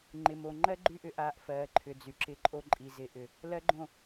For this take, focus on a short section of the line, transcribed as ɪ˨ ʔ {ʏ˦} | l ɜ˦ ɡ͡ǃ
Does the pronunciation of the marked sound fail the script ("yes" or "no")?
yes